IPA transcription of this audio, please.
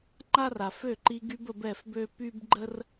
ŋ͡ǃ a˦ r a˨ f ø˦˨ ǃ i˧ ɡ y˧ b ə˧ b ɛ˦˨ f b ø˦ p y˦ b ɡ͡ǃ ə˦ r

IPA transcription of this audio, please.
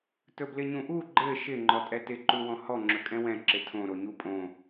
t ɵ b l ɪ ɲ ũ ʔ u ɡ͡ǃ ɘ ʃ ɪ ŋ͡ǃ ɔ tʼ ɛ t ɪ ǃ u w ɔ̃ h ɔ ŋ͡ǁ ɵ kʼ ɛ̃ w ɛ̃ ǁ ɪ tʰ õ ɾ o ɲ u pʼ õ

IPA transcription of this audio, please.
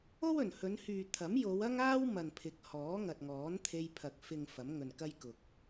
o˥ w ɵ˨˩ n h ɵ˨˧ n h yː˨ t̪ʰ ɐ˨˥ m j o˨˧ w ɐ˥ ŋ aː˥ w m ɐ˨ n pʰ ɪ˨˥ k̚ h ɔː˨˥ ŋ ɐ˨ t̚ ŋ ɔː˨˥ n t̪ʰ e˧ j pʰ ɐ˨ k̚ f ɪ˨ ŋ f ɐ˨˥ m ŋ ɵ˨ n k ɐ˥ j k ʊ˨ k̚

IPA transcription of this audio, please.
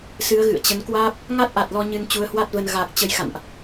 s ɨ˨˦ ə̯ ɣ ɨ̰˧˨ ə̯ t͡ɕ ə˨˦ n k w aː˦˥ p̚ | ŋ a˦˥ t̚ ʔ a˨˩ t̚ l ɔ˧ ɲ ɨ˧ n t͡ɕ u˨˦ ə̯ h w a˦˥ t̚ v ə˧ n ɣ a˨˩ k̚ t͡ɕ ə˨˦ j x a̰˧˨ n ʔ

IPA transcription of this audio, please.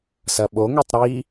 s ɐ ɓ o ŋ ø tˤ ɾ i

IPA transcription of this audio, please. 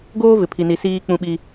ɡ oː˦ v ɪ˨ pʰ i˨ n i˨ s iː˦ k͡p ũ˦ ɓ i˦

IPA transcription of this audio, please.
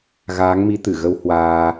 ɣ aː˨˦ ŋ m i˨˦ t̪ ɨ˧˩ ɣ ə˧ w h w aː˧

